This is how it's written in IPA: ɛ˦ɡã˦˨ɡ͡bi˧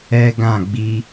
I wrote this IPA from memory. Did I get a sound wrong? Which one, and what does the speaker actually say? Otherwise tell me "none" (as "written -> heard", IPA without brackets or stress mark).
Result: none